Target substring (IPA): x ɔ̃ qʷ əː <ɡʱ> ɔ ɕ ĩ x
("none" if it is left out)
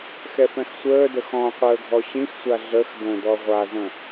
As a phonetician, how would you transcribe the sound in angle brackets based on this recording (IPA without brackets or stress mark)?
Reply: ɡʱ